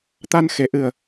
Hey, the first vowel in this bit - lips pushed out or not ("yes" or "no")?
no